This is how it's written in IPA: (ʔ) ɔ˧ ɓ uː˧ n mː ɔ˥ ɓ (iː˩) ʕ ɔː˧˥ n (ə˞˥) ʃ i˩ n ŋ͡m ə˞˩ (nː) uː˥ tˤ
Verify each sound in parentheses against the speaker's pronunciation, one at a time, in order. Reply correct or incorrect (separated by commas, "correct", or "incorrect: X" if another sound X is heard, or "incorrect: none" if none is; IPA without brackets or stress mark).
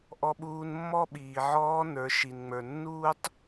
correct, correct, incorrect: ə˞˩˧, correct